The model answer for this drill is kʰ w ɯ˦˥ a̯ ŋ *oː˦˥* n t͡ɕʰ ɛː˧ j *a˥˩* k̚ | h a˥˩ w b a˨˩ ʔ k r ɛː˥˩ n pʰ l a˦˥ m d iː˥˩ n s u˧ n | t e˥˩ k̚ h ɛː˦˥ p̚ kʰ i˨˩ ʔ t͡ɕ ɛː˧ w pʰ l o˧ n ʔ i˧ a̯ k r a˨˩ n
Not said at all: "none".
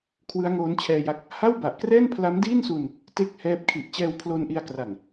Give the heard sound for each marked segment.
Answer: oː˦˥, a˦˥

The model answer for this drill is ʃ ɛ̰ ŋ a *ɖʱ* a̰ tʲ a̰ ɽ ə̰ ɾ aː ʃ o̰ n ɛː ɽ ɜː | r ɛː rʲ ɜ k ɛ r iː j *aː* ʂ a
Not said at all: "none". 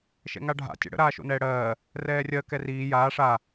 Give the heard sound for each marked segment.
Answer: ɖʱ, aː

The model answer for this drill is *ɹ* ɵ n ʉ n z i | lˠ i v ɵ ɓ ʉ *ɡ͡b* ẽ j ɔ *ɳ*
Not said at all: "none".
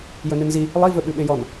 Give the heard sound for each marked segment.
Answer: j, ɓ, n

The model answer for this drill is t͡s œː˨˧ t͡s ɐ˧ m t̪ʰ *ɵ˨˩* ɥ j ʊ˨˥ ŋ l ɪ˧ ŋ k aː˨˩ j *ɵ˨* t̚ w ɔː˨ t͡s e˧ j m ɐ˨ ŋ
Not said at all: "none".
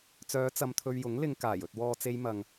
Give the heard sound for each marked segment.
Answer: ɵ˧, ɵ˨

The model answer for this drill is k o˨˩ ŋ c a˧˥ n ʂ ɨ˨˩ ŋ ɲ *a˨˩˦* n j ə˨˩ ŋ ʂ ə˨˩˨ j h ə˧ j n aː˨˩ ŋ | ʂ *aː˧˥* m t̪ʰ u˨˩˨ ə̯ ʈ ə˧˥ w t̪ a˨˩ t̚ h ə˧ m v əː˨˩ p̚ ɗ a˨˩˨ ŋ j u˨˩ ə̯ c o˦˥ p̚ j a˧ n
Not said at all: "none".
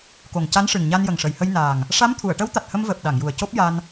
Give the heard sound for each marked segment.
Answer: a˧, a˧˥

